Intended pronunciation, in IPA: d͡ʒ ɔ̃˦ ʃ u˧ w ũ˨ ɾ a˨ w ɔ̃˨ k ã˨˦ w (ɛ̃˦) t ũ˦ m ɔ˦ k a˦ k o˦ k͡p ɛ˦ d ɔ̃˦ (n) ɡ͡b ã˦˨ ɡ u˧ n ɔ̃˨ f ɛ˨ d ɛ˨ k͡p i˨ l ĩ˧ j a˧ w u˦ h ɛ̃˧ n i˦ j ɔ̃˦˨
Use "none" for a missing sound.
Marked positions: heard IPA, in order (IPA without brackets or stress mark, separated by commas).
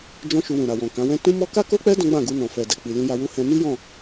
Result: ɛ̃˦, none